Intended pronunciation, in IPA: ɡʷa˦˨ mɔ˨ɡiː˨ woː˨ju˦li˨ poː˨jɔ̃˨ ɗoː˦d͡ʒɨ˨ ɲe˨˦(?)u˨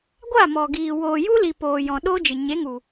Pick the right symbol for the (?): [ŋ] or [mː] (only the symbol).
ŋ